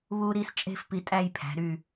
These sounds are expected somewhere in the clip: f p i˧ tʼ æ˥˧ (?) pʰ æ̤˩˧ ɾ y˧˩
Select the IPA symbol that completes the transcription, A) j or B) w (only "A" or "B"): A